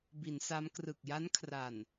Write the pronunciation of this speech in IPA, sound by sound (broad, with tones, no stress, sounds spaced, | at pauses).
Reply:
b i˩˦ n s a˦˥ m k r ɯ˨˩ k̚ j a˦˥ n kʰ r a˨˩ n